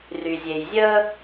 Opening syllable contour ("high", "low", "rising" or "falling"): low